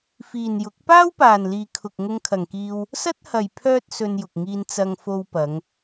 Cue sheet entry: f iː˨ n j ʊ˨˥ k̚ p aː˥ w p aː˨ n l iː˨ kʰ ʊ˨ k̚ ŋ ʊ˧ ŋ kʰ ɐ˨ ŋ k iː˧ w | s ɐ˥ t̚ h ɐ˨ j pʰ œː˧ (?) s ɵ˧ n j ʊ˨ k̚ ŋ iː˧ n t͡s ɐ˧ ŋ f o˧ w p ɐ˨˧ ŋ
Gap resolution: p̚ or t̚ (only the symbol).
t̚